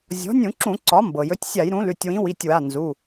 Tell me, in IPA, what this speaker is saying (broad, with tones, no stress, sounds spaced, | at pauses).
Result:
zʲ ɔ̤˩˥ nʲ ũ˧˩˧ ǁ ũ˧˩˧ ǀ ɒ˩˥ m b ɤ˩ j ɵ˩˥ tʲ sʲ a˧˩˧ j ɾ ũ˩˥ l ʉ˩˧˩ tʲ w ĩ˩˥ w i˩˧˩ tʲ w a˩˧˩ n z u˩˧˩